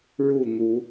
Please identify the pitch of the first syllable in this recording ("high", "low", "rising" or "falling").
falling